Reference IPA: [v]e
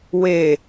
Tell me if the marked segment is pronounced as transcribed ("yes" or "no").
no